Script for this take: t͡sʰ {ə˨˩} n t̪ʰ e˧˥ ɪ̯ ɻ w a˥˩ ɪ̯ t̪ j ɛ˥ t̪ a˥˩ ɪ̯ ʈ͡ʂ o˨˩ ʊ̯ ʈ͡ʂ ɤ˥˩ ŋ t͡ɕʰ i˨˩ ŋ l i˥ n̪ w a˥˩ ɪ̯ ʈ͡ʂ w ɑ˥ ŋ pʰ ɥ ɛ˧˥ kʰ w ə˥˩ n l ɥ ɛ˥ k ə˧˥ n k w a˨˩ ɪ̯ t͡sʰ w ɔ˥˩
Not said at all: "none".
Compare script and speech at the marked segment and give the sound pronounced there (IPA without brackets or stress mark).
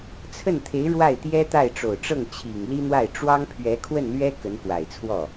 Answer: ə˥˩